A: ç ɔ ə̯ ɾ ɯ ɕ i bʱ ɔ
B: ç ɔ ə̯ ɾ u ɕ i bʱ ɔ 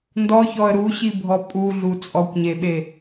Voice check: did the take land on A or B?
B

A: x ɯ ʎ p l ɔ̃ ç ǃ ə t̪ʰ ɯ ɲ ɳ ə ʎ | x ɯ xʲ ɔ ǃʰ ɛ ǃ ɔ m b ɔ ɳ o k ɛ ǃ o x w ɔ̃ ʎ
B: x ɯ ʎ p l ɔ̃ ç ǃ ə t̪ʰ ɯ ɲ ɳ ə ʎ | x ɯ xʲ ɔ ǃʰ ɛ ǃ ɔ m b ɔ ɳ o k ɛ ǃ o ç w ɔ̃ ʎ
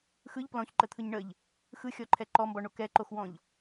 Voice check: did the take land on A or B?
A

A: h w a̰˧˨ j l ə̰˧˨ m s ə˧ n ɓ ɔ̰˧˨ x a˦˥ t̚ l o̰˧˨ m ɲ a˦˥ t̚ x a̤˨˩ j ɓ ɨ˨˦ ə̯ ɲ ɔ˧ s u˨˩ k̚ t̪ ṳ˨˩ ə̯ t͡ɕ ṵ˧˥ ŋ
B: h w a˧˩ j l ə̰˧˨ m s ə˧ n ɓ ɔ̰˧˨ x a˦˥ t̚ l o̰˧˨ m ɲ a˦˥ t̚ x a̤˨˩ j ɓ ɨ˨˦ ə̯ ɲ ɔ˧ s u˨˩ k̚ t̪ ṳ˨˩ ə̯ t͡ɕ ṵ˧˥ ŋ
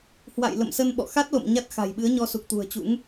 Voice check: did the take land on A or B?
A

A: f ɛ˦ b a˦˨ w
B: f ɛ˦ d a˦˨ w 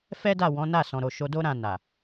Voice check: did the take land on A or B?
B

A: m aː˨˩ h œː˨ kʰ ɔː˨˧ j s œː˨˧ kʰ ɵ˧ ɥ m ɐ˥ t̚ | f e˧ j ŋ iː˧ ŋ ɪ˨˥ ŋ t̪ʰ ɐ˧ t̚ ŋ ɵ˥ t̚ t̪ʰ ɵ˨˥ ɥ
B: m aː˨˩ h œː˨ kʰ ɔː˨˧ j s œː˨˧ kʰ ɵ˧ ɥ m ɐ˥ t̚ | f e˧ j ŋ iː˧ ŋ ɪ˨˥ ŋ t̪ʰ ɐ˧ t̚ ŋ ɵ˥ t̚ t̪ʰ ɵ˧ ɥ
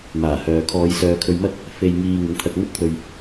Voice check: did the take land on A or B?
B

